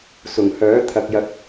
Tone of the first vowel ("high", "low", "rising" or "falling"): low